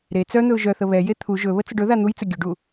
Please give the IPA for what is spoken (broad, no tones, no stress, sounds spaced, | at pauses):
ɾ e t͡s œ n̪ ɵ ʊ̯ ʒ œ θ ə β ɛ j e t̪ʰ u ʒ ɵ β ə t͡s ə ɖ ɵ ð a n̪ u j t͡s ɘ ɡʲ ɵ ɖ u